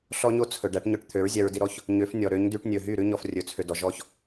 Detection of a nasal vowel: absent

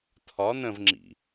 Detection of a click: present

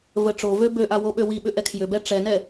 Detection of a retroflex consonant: present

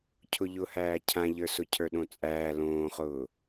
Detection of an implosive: present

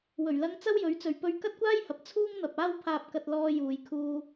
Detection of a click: absent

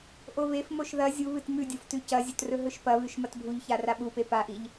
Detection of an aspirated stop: absent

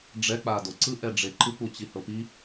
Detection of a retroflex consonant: present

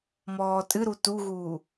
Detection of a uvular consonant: absent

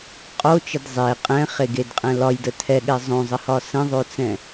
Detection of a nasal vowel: present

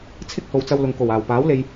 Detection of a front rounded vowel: absent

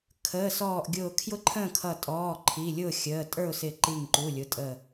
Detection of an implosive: absent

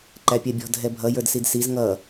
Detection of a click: present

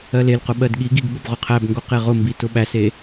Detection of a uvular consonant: present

